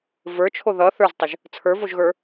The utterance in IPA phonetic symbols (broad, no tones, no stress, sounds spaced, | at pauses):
v ə˞ t͡ʃʰ o ð ʌ θ ə˞ z tˤ ʌ ʒ | t͡sʰ ə˞ v o ʒ ɣ ə˞